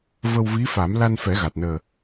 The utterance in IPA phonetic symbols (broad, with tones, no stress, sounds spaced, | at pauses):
v ə˧ w v i˧˥ f a˨˩˦ m l a˧ n f ɛ˨˩˦ ɣ a˨˩ t̚ n əː˨˩